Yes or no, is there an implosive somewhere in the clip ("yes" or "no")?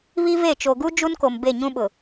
yes